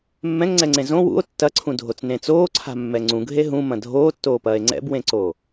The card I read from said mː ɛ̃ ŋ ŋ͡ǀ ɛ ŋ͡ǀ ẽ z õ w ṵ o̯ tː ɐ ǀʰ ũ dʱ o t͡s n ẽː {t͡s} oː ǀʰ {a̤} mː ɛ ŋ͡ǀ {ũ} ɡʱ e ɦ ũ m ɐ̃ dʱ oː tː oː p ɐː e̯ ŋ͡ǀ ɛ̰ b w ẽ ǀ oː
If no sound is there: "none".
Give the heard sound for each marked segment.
t͡s, a̤, ũ

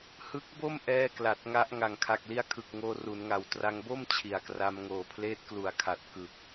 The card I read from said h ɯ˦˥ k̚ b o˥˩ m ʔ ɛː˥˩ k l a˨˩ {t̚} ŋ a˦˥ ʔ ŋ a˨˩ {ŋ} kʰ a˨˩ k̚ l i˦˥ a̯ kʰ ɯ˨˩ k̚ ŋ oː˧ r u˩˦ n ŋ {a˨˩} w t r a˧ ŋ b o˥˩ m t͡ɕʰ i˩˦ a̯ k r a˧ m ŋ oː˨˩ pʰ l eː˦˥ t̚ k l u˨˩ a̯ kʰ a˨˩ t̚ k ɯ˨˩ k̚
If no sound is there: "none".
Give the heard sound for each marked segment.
t̚, ŋ, a˨˩

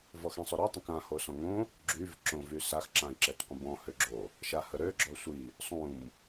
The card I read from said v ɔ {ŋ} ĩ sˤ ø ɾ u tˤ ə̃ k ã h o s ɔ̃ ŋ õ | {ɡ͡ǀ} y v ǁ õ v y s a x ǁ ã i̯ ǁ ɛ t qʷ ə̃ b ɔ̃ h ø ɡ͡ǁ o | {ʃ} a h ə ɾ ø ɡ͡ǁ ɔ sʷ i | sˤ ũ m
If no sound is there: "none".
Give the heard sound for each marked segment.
x, ɡ͡ǁ, ʃ

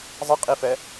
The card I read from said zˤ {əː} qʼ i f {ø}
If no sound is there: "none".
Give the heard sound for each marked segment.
ə, ɛ

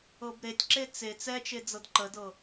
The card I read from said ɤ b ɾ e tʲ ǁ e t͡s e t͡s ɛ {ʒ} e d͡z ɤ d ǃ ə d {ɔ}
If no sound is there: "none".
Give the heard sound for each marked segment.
t͡ʃ, ɤ

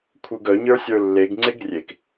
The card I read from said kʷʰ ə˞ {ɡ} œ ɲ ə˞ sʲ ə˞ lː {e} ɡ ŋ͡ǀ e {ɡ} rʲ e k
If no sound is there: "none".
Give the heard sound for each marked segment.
ɡ, e, ɡ

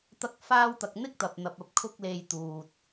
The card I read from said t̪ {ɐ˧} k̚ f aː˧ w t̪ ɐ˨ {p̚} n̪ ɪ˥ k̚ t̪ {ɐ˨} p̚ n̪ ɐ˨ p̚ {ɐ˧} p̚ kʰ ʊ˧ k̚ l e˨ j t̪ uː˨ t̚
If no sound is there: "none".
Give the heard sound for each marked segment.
ɐ˧, k̚, ɐ˨, ɐ˧

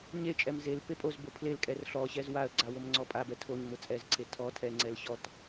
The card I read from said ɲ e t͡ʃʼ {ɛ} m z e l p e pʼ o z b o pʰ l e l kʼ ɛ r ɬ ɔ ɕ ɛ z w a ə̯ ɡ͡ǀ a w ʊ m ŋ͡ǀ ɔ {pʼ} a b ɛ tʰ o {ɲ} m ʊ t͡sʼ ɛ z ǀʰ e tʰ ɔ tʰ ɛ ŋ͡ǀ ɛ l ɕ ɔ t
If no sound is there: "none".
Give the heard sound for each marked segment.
ɛ, pʼ, ɲ

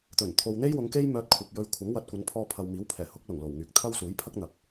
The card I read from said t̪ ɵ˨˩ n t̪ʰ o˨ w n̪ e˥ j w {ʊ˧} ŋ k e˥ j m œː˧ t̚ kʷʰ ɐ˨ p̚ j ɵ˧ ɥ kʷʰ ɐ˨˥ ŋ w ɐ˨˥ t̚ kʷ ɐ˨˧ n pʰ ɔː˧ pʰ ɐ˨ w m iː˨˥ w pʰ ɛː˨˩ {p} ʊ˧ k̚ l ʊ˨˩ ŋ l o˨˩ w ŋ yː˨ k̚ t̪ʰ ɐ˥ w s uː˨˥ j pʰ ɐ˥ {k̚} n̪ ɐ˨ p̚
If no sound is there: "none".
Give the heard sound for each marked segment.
ʊ˨˧, h, k̚

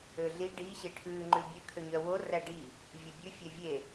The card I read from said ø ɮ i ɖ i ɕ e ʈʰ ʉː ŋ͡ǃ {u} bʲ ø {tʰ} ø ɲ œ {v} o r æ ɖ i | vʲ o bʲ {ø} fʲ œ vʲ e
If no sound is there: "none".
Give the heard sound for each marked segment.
ʉ, kʰ, w, ʉ

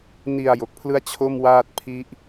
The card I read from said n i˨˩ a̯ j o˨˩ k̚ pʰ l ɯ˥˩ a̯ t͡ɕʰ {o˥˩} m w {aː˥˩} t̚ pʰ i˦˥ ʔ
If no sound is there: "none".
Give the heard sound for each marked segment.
o˥˩, aː˥˩

